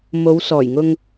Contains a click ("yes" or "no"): no